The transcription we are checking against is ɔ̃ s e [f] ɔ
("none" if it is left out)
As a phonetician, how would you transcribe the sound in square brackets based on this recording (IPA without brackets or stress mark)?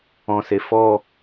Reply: f